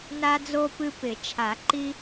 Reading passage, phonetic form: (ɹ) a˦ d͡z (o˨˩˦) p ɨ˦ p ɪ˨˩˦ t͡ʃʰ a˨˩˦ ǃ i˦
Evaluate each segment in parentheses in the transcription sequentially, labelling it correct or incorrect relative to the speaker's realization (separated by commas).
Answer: incorrect, incorrect